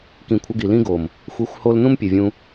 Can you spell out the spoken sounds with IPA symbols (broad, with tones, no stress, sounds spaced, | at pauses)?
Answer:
k ĩ˨ kʷʰ ə˧ ɡ i˨ l ĩ˦ ɡ o˨ m | xʷ i˨˦ xʷ h o˧ l n ũ˦ m pʲ e˨ vʲ ũ˧